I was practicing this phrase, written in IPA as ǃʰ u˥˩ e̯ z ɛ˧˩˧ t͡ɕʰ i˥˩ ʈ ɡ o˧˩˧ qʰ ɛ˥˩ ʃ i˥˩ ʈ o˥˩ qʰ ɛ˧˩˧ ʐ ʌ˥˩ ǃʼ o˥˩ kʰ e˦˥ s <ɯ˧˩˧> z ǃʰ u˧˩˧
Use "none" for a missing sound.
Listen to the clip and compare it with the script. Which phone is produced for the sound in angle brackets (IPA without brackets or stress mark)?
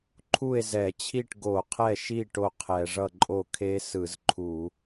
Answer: ɯ˧˩˧